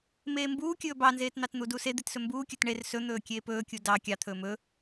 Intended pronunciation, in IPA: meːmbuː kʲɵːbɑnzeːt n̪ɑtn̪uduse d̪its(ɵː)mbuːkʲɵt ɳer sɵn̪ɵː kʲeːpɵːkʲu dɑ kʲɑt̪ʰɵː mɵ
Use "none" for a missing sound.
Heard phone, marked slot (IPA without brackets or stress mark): ɵ